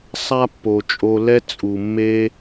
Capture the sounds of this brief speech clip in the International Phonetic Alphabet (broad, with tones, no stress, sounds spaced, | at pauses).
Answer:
sˤ a˦ pː o˨ t͡ʃʼ o˧ l ɛ˦ t͡sʼ u˨ mː e˦